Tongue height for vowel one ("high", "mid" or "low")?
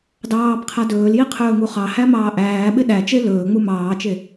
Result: low